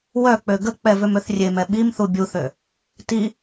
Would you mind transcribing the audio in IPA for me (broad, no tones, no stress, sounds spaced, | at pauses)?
w œ k͡p ø ɡ ə k͡p ɛ v ø m ø θ rʲ e m ɛ ɓ i m θ u bʲ u θ ø | t i